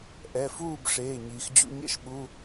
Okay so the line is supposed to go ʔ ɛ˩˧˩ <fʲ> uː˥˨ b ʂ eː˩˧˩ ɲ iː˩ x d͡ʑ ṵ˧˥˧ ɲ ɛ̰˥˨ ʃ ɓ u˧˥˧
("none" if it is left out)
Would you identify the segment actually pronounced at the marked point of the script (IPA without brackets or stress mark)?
f